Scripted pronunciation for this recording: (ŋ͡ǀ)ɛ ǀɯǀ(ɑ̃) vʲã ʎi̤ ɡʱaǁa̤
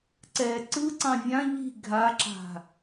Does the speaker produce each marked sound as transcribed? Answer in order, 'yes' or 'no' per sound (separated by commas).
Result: no, yes